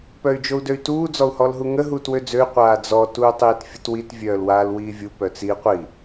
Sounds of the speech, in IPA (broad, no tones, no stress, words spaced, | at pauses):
pœy̯d͡ʒou̯døy̯tuː d͡zɔu̯hɔlɦuŋə ɦuːtwød͡zøy̯ qʷaːd͡zɔ tuːtˤiːtfʲətwit vʲœːlwaːlwiːvʲu pœt͡si qʷi